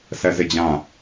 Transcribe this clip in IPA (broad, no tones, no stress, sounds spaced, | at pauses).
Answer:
s ɛ z ɪ d͡ʑ ã